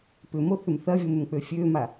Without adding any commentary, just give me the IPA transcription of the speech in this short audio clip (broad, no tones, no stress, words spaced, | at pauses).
pʏmo θʏmθɐvʲom ʏmk͡pøfʲøma